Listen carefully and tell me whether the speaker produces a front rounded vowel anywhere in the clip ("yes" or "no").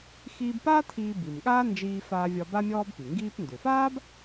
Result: yes